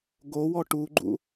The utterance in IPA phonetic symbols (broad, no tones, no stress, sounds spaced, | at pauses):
ɡ o w ɔ ʈ u ɡ͡ǃ ṵ